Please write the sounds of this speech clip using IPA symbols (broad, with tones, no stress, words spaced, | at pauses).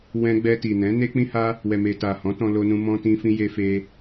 wɛ̃˧ɡ͡bɛ˧ti˨nɛ̃˨˦ ne˧k͡pĩ˧ha˧ | wɛ˨me˨ta˨ hɔ̃˨˦tɔ̃˧ lo˧nũ˧ mɔ̃˧tĩ˧fĩ˧ je˧fe˧